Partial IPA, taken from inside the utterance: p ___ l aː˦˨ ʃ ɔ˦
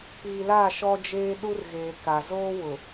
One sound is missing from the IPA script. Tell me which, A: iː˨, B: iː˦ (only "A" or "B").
A